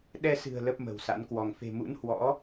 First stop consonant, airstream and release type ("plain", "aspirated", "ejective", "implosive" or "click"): implosive